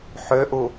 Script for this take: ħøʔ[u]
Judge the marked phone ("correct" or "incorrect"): correct